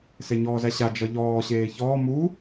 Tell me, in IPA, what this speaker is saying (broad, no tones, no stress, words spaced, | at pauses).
seɲɔːzæɕa d͡ʒʌʎɔː ɕeːçɔː mu